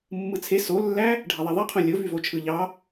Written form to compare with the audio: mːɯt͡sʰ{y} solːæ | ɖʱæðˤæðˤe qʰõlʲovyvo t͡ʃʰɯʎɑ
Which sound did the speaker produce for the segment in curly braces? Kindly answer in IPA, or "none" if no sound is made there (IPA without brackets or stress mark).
e